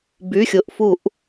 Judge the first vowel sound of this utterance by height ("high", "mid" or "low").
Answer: high